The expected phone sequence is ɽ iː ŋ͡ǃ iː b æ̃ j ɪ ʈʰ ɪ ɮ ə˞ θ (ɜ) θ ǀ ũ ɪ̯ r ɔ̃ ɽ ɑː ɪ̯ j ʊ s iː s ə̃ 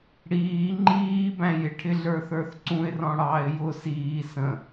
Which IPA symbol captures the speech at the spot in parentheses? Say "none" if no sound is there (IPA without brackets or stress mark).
ə˞